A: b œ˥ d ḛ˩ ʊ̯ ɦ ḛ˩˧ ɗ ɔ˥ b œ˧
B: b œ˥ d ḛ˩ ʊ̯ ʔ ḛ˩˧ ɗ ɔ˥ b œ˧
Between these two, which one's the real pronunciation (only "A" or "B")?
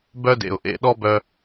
B